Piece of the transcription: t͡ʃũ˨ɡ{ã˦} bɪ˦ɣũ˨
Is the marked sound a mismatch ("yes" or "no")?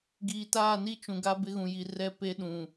yes